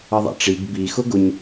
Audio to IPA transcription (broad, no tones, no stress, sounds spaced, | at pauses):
ʌ ðˤ a̰ ʈ͡ʂ i ɡ b i x ʊ ɡ ʊ ɲ